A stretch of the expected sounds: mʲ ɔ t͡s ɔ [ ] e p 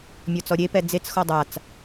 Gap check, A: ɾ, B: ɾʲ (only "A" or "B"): B